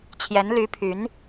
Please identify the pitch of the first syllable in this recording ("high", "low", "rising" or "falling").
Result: rising